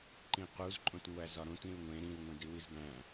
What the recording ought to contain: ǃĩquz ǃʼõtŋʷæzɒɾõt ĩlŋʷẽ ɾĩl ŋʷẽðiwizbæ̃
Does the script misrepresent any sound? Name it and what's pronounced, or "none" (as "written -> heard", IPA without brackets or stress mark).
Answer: ð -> d